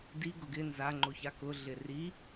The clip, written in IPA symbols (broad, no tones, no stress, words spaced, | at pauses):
di ɡʊɡɪ nzaŋ͡ǃoça kʊ ɮɪri